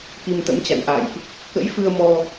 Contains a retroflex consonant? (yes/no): no